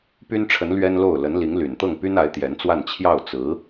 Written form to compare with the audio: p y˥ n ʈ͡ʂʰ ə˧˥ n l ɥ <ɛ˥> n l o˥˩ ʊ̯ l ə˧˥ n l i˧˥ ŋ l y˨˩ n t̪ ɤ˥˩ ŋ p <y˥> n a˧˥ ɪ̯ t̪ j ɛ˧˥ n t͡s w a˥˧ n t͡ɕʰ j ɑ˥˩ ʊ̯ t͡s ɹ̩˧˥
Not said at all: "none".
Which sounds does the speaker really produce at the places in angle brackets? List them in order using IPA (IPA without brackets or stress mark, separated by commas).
ɛ˥, y˥